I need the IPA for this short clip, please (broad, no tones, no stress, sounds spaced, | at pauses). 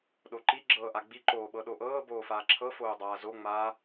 ɗ o ǃ i ɡ͡ǁ ɤː ʔ a ɡ͡b i ǃ oː ɓ ɤ ɗ o ʔ ɤː b oː f aː ǁʰ ɤ f oː dˤ aː z o ŋ͡m aː